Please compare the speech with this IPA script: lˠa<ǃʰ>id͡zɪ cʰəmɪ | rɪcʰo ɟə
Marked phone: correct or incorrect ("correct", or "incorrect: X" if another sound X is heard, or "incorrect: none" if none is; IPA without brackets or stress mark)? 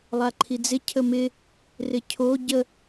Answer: correct